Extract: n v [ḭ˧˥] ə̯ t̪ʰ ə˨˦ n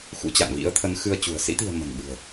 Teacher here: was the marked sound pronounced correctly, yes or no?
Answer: yes